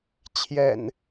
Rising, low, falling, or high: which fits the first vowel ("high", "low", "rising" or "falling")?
low